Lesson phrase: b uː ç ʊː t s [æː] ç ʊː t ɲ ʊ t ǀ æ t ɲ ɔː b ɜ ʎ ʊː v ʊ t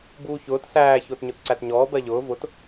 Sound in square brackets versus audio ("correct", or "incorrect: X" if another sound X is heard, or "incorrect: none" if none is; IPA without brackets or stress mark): correct